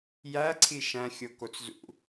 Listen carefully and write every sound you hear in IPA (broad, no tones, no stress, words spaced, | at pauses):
jæǀʰi ʃæ̃xʲo kot͡szṵ